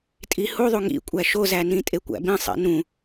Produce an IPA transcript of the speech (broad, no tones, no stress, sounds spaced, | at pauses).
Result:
tʼ i h u ðˤ u ŋ ḭ kʷʼ æ ʃ o z æ n ĩ tʼ e kʷ æ̰ b ĩ sˤ ḭ n ũ